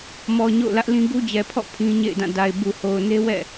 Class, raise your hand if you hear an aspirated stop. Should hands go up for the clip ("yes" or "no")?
yes